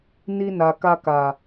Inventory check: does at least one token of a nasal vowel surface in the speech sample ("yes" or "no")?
no